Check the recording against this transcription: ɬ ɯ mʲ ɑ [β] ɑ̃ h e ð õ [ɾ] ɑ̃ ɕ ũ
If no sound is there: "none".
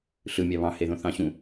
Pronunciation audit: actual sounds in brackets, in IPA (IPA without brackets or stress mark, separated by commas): β, θ